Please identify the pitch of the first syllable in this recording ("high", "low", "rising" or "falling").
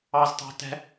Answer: low